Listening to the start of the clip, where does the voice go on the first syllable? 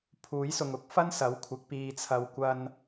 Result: rising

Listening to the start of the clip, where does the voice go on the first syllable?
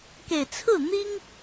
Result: low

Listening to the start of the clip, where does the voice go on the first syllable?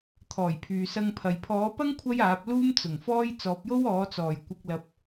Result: low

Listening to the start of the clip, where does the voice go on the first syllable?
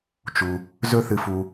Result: low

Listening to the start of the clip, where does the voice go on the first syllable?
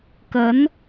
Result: rising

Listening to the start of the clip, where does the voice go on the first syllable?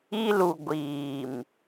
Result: high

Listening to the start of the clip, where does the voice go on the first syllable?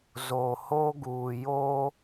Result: low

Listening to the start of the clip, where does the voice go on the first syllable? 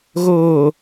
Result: low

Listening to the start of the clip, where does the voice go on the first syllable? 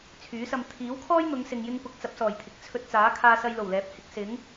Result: rising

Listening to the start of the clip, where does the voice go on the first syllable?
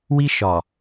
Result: high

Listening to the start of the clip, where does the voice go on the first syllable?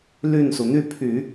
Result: falling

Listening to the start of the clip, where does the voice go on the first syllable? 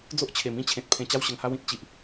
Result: high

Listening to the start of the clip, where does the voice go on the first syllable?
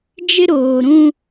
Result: high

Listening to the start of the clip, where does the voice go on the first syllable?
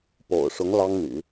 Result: low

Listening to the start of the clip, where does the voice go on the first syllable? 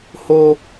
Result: high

